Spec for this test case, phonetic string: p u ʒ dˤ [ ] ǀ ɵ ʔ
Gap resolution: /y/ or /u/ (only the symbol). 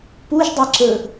y